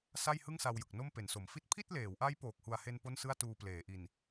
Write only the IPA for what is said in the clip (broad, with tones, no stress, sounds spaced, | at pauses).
s a˥˩ j h ɯ˥˩ ŋ s a˧ w j ɯ˨˩ k̚ n o˥˩ m p e˩˦ n s o˩˦ m f i˥˩ t̚ pʰ i˥˩ t̚ l eː˩˦ w ʔ a˦˥ j p oː˨˩ k̚ h u˨˩ a̯ h e˧ n p o˥˩ n s ɯ˥˩ a̯ t uː˧ p l eː˩˦ ʔ i˨˩ n